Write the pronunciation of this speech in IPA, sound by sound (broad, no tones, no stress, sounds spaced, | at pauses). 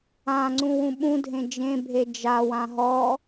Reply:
ã ŋ͡ǀ ũ w ũ ɓ ũ dʱ ẽ d͡ʒ ẽ bʱ e d͡ʒ a w ã ɦ ɔ